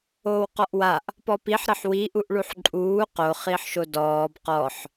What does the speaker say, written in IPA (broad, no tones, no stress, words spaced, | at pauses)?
oːwqɔʔwaʔ | pɔpiħ ɾəħwi ʔuʔɭuħǃʼuː qo χiħʃodɔːb qɔħ